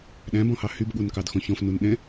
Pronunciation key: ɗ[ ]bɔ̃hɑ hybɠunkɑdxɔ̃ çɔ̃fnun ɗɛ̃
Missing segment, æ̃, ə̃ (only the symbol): æ̃